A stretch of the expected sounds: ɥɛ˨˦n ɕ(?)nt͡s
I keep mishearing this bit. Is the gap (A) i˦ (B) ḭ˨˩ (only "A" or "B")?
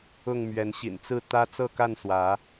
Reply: B